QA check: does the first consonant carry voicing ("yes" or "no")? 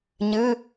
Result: yes